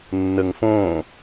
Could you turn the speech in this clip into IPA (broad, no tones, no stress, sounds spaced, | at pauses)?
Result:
nː ə ŋ f õː